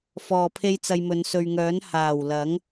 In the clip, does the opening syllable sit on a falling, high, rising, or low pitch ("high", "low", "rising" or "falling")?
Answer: low